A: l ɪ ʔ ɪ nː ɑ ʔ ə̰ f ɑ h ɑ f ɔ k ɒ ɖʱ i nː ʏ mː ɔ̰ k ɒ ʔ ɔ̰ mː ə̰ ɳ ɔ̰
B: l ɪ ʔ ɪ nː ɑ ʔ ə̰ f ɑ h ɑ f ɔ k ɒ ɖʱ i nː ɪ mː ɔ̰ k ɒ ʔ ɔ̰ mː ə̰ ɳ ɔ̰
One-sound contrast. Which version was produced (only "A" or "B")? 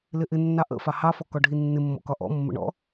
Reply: B